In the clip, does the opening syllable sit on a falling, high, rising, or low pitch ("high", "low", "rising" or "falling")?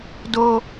high